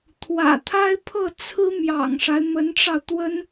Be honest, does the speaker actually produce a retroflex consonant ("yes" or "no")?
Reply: yes